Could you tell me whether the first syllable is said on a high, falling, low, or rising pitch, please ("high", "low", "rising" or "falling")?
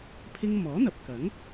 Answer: high